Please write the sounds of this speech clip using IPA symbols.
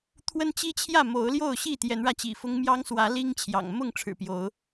t̪ʰ w ə˦ n t͡ɕ i˦ t͡ɕʰ j ä˥˨ m o˨˦ ʊ̯ l j o˥˨ ʊ̯ ɕ i˥˨ t̪ j ɛ˨˦ n ɻ ä˧ t͡ɕ ḭ˨˩ f ʊ˦ ŋ m j ɑ˦ ŋ s w ä˨˦ l i˦ ŋ t͡ɕʰ j ɑ̰˨˩ ŋ m ʊ˥˨ ŋ ʈ͡ʂʰ ɻ̩˨˩ p j o˨˦ ʊ̯

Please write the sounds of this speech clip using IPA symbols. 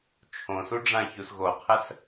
t͡ʃʰ õ s u ɖ͡ʐ ã ç u s ɣ o qʰ ə s

